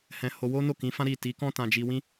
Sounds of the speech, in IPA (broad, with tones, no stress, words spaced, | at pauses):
hɛ̃˧ho˧ wo˦no˦˨kĩ˨˦fã˦ ɾi˦˨ ti˨˦kɔ̃˦tã˧d͡ʒi˧ wĩ˦